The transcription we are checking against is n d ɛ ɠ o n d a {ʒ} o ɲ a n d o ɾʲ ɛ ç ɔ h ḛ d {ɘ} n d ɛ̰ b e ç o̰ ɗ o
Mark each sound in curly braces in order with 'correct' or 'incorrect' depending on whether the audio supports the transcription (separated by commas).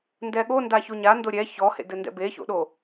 incorrect, correct